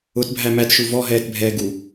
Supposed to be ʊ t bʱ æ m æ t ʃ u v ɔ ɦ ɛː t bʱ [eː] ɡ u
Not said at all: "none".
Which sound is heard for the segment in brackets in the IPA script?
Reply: ɛː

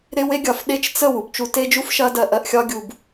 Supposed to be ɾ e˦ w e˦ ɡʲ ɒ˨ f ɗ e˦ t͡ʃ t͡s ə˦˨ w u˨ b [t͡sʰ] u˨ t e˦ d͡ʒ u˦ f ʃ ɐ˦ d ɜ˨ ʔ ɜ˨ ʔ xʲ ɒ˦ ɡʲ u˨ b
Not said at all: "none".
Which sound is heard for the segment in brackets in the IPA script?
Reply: t͡ʃ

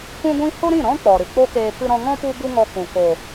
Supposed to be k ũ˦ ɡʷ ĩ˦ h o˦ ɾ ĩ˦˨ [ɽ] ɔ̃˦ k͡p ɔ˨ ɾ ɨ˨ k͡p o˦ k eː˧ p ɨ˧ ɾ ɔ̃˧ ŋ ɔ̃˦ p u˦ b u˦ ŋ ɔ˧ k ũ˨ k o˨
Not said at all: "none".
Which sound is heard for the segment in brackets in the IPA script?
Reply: ɾ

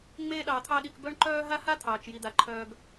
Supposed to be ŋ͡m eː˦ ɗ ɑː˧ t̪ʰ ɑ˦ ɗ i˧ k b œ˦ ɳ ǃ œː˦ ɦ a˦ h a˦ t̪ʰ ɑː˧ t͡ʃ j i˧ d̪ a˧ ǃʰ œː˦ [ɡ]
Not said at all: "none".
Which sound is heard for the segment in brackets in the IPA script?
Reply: ɡ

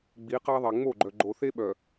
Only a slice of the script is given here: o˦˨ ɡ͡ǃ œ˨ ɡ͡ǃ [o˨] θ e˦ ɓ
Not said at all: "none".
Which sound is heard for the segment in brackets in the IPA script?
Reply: o˨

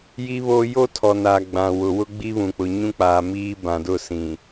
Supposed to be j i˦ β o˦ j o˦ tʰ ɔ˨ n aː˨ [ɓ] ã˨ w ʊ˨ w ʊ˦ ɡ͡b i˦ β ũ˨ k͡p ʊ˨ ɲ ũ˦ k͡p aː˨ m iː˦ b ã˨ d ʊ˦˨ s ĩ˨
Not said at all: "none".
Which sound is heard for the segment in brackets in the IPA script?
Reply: ɡ͡b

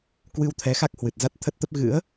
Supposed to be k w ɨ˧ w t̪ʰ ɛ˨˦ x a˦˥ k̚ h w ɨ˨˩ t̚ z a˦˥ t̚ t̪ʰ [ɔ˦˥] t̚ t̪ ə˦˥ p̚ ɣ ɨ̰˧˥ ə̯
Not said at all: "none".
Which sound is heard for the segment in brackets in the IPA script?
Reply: ə˦˥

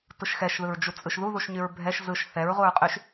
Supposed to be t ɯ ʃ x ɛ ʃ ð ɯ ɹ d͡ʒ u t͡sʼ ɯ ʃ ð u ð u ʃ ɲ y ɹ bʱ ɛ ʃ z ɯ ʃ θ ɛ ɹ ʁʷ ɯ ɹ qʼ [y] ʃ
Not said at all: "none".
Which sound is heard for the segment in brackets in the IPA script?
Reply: y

